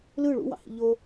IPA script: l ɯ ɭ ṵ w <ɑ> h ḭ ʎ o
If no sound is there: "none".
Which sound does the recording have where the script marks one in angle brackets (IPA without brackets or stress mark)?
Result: ɑ̰